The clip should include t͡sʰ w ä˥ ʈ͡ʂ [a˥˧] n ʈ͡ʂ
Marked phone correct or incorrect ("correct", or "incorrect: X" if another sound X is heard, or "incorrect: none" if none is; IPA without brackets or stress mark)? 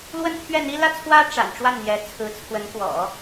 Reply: incorrect: a̰˨˩